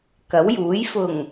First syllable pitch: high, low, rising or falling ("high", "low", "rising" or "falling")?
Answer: rising